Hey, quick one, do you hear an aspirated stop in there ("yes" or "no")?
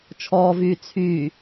yes